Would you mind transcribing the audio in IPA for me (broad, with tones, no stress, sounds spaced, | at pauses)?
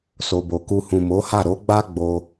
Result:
s o˨ b o˨ k u˧ h ũ˨ m o˨˦ h a˦˨ ɾ o˨˦ ɡ͡b a˦ ɡ͡b o˦